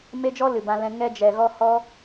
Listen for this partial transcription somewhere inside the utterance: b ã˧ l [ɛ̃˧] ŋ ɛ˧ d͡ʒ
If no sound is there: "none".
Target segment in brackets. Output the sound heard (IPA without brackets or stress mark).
ɛ̃˧